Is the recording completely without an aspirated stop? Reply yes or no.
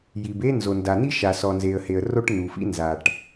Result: yes